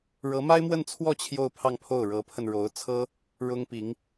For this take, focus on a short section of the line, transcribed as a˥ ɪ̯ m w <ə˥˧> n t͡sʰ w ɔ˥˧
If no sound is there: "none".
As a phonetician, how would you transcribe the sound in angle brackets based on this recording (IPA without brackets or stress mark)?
ə˥˧